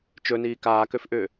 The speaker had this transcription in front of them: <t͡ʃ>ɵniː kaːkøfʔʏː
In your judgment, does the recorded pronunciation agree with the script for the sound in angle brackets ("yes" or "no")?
yes